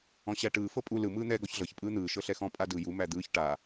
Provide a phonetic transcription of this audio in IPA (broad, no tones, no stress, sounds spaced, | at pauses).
ɔ̃ ɕ æ ʈ ɯː f ɤ pʼ u l ɯ m ɯː n̪ ɛː ɡ ɔ ç ɮ ɤ ç pʼ ɯː n̪ ɯː ʃ ɤ ɬ ɛ x ɔ̃ pʼ a d ɯ j u m æ d̪ ɯː ç ʈ a